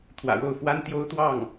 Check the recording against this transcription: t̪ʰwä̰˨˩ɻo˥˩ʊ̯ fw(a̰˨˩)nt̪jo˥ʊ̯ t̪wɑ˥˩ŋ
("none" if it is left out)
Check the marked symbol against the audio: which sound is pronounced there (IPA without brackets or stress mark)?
a˥